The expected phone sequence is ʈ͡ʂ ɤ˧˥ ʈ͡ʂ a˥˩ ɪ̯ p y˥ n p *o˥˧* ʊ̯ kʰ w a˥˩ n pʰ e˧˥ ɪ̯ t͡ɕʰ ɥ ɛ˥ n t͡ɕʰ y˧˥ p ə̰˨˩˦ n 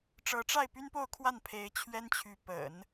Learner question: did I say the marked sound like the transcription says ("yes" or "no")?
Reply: yes